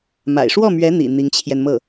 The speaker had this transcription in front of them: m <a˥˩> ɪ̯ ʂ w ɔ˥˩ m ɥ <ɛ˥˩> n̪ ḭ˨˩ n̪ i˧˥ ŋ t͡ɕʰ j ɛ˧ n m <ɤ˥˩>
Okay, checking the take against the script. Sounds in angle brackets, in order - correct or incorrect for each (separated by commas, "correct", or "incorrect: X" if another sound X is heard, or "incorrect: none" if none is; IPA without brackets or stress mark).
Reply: incorrect: a̰˨˩, incorrect: ɛ˧˥, correct